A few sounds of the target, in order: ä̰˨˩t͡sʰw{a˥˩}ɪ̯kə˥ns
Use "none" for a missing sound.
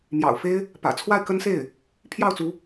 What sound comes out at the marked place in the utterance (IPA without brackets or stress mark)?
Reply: a˥˩